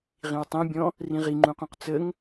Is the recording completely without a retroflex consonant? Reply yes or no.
yes